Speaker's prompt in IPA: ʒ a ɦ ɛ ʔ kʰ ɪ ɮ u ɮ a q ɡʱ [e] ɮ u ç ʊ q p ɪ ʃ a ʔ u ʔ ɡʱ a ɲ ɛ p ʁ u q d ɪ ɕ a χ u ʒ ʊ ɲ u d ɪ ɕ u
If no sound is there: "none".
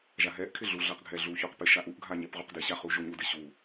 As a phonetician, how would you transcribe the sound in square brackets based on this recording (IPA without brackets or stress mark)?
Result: ɛ